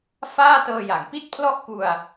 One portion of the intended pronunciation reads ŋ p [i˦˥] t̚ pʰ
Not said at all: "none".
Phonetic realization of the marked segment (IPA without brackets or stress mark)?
i˥˩